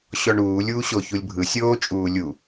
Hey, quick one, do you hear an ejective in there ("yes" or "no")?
yes